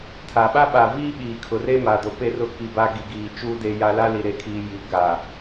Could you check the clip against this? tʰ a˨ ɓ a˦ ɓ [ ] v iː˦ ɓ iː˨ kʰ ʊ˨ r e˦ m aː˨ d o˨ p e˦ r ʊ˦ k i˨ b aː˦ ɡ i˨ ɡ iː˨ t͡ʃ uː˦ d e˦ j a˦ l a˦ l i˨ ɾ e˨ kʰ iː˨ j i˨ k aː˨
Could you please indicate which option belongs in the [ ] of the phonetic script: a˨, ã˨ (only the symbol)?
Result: a˨